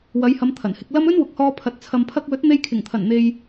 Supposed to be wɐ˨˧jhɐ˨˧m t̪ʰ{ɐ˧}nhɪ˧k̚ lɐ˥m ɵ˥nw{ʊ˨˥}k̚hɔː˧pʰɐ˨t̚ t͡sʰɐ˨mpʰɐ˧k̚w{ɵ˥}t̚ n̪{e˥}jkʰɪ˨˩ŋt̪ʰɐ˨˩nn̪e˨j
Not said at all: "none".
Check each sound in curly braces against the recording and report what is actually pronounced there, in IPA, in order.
ɐ˨˩, ʊ˨˥, ɵ˨˥, e˧

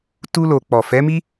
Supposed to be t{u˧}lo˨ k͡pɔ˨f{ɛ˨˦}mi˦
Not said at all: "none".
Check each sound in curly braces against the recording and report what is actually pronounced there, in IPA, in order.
u˧, ɛ˨˦

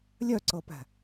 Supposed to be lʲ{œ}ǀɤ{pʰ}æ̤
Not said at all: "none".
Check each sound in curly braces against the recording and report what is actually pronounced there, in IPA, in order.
œ, p

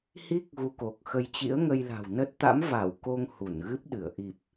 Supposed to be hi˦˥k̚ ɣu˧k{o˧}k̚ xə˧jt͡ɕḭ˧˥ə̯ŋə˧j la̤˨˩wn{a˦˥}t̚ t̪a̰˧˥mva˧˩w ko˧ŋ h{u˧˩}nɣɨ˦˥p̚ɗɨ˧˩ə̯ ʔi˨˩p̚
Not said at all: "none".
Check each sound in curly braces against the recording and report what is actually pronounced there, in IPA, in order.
o˨˩, ə˦˥, u˧˩

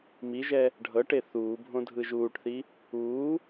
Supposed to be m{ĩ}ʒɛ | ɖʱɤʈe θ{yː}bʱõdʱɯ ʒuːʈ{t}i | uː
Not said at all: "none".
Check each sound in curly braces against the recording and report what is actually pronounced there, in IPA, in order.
i, uː, θ

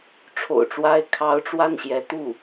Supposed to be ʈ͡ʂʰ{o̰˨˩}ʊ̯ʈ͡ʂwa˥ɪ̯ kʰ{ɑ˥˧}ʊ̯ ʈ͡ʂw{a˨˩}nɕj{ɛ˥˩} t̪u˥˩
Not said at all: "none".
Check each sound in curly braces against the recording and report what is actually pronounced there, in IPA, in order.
o̰˨˩, ɑ˥, a˥˩, ɛ˧˥

